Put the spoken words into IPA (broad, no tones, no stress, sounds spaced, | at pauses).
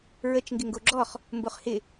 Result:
ɹ ə t͡ʃ ŋ ɡ ɪ ŋ ɡ o ɡ͡ǁ ɔ χ | m b o χ h ɪ